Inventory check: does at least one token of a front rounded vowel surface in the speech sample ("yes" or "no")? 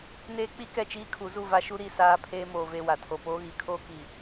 no